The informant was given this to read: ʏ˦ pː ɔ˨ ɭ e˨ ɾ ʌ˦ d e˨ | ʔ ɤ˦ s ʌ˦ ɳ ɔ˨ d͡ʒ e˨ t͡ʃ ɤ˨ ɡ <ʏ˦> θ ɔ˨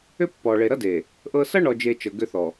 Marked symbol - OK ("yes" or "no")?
yes